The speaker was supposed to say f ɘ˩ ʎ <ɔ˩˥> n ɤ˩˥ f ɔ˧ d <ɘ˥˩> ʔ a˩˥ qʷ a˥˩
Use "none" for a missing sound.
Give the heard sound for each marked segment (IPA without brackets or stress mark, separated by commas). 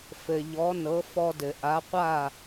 ɔ˩˥, ɘ˩